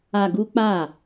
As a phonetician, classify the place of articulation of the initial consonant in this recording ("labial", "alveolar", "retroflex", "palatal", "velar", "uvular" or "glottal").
velar